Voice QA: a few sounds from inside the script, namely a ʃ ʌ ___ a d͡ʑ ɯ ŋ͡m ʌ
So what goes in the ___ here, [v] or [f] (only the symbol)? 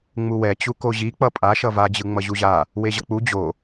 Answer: v